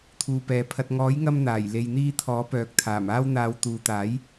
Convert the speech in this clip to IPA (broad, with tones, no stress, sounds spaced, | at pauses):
t̪ʰ uː˨ p ɛː˨ pʰ ɐ˨ t̚ ŋ ɔː˨˥ j ŋ ɐ˧ m n̪ aː˨˩ j l e˨ j n̪ iː˧ t̪ʰ ɔː˨˥ p œː˨ k̚ t̪ʰ aː˨˩ m aː˥ w n̪ aː˧ w t̪ uː˨ t̪ aː˨˥ j